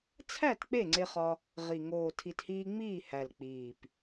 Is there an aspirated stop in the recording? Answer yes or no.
yes